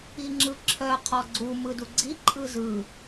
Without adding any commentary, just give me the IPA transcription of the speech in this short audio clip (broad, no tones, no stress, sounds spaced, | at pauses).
i ŋ͡ǁ ɯ ǁʰ œ qʰ ɔ ɡ͡ǀ u m ɯ d u ɡ͡ǀ i ǃʼ ɯ z ɯ